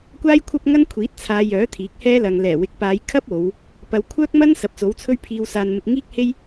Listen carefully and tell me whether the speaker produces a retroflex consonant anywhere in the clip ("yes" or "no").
no